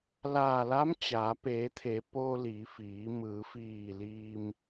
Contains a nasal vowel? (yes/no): no